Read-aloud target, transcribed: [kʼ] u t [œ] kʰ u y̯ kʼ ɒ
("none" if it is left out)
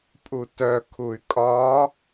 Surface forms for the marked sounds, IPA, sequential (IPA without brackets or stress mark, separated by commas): pʼ, œ